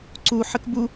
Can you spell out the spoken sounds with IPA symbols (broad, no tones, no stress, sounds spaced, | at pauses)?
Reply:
ǀ u ħ ə k b u